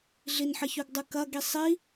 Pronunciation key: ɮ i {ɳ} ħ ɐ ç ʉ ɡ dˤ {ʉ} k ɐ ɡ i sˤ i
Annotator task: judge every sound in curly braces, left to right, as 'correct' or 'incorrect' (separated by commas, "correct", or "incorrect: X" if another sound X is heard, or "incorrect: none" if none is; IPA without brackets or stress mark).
incorrect: n, incorrect: ɨ